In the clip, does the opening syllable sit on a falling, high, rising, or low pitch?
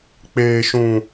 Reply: low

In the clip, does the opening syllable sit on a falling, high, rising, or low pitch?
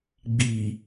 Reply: low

